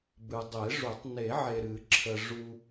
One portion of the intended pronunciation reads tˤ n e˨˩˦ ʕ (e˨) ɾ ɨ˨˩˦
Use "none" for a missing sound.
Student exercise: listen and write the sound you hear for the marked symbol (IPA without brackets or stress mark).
e˨